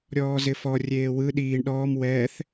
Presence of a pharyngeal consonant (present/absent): absent